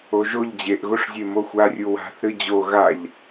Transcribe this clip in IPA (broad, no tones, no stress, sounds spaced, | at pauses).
o ʒ o ʎ d͡ʑ e ʔ ɣ o ʂ zʲ e m o xʷ a rʲ u w a̤ θ ɾ ɨ d͡ʑ o ɣ a ʎ